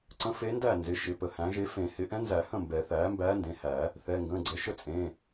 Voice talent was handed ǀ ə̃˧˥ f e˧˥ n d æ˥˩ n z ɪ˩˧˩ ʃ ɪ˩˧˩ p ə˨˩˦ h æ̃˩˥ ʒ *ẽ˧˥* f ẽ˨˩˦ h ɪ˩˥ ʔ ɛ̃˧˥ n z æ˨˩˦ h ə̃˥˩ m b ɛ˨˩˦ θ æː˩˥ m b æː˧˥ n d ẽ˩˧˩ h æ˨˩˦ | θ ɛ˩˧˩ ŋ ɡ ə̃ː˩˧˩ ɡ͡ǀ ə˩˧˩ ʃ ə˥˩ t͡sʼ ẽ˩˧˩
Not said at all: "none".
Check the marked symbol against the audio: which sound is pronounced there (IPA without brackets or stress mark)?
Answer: e˧˥